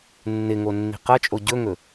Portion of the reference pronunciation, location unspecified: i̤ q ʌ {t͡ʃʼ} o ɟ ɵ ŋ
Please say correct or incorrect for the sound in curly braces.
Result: correct